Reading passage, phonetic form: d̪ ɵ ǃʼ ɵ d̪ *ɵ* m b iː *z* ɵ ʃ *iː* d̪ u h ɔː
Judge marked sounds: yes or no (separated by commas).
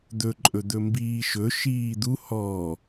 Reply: yes, no, yes